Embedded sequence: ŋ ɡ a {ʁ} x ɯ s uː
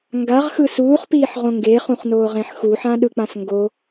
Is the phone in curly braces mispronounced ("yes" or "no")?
no